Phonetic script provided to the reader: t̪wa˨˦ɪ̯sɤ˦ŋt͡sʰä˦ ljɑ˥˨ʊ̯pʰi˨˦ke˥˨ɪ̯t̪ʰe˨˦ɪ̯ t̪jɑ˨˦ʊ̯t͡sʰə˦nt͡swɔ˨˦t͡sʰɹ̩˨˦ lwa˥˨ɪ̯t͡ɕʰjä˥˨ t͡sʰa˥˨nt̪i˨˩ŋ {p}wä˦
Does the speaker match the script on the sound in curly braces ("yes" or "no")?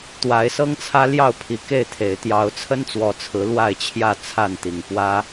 yes